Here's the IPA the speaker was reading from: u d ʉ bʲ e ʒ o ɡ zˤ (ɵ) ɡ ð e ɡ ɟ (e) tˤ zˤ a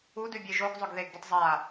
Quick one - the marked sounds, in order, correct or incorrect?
correct, incorrect

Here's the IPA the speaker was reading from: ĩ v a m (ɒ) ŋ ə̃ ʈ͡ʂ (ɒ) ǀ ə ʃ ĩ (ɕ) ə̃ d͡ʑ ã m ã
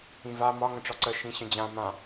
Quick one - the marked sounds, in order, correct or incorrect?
correct, correct, correct

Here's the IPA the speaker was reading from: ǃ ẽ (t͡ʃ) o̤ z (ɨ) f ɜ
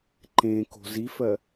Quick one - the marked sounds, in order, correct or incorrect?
incorrect, incorrect

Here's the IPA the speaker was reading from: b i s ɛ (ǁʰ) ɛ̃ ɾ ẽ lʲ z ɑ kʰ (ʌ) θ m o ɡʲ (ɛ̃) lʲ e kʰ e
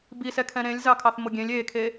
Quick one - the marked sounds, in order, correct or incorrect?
incorrect, incorrect, incorrect

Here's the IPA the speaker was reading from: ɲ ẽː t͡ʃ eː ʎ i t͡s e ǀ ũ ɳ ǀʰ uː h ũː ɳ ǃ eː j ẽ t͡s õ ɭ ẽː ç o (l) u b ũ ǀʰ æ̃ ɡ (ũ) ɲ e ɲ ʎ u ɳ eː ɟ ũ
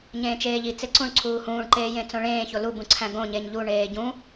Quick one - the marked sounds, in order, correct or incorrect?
correct, incorrect

